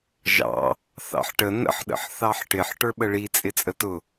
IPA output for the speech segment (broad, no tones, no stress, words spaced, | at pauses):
ʒɑ̰ | θɑ̰ħʈə nə̰ħɗə̰ħ θɑħʈɪħ ʈə˞ɓəɭi t͡sʼɪt͡sʼətʊ